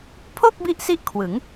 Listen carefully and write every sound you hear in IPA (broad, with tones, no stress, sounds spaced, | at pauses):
pʰ o˥˩ k̚ b i˦˥ ʔ s i˦˥ ʔ kʰ w ɯ˩˦ ŋ